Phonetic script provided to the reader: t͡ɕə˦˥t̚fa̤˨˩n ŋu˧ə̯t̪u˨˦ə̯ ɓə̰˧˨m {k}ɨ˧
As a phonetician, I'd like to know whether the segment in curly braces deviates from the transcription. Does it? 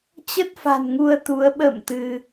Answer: yes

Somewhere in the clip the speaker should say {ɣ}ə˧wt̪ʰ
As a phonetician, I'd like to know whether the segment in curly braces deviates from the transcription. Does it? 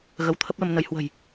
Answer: no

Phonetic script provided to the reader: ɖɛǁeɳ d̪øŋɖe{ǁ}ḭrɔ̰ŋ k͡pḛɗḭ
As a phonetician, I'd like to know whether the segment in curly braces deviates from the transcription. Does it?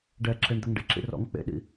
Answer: no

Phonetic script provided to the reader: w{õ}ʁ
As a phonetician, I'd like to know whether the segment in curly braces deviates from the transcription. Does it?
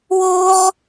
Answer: yes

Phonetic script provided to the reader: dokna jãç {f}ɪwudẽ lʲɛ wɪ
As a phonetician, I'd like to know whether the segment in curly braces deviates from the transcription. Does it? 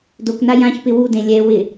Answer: yes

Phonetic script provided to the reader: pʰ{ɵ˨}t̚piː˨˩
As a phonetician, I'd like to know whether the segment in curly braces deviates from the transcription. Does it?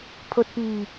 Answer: no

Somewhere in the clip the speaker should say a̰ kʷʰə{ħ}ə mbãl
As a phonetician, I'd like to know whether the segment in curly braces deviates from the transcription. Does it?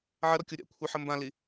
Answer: no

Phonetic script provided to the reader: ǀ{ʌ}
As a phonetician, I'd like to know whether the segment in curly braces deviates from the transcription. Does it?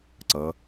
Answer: no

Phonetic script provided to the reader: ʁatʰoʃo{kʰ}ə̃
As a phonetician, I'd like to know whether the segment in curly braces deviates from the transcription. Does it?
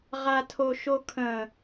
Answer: no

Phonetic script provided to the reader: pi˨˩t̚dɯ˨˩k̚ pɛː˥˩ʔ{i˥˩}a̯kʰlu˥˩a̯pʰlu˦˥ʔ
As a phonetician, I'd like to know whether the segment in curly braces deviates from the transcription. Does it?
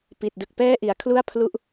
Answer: yes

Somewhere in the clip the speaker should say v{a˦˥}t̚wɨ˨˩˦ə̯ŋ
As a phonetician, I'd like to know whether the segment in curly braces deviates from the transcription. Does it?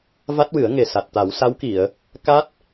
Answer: no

